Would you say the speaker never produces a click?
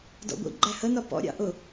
no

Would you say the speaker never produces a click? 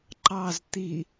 no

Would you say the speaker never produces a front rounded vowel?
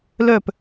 no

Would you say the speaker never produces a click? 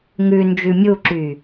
no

